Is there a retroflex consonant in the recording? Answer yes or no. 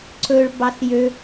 yes